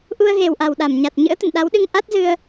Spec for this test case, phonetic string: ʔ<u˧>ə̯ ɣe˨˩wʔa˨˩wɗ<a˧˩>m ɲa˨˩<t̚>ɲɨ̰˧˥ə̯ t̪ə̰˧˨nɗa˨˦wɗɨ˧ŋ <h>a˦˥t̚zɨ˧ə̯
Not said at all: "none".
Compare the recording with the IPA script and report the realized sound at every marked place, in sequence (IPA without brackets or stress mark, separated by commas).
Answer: u˧, a˧˩, t̚, ʔ